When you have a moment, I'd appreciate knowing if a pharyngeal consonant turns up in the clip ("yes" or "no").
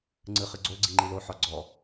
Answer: yes